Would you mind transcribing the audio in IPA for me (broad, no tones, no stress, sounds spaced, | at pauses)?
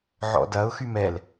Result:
ʕ ɔ̰ d ɐ ʊ̯ x y m ɛ l